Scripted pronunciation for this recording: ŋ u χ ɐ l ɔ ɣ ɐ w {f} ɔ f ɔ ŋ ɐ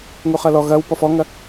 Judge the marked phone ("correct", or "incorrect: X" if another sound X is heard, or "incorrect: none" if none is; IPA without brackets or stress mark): incorrect: p